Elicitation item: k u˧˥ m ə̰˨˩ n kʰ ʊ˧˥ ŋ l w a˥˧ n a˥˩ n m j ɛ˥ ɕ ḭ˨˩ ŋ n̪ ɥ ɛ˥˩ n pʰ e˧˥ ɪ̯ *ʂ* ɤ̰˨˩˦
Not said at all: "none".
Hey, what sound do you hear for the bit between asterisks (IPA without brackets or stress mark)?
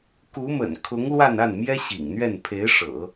ʂ